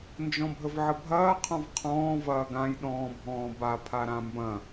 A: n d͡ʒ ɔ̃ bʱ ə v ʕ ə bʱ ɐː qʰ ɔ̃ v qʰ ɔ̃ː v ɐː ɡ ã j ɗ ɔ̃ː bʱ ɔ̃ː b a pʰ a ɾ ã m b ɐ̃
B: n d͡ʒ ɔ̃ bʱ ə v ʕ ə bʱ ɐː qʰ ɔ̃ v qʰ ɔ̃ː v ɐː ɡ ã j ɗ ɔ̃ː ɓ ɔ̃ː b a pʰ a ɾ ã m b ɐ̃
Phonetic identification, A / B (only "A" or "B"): A